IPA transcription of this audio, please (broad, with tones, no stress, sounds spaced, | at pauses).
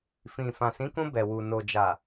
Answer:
f ĩ˨ f ã˨ s ĩ˨˦ k ũ˧ b ɛ˨ w u˨ n o˨ d͡ʒ a˨